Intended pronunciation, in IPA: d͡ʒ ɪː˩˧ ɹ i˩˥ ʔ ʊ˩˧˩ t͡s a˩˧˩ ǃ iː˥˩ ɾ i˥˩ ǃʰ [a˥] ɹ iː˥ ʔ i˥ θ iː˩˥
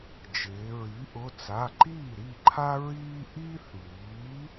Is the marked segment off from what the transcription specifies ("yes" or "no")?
no